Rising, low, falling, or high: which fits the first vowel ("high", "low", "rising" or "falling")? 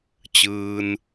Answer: low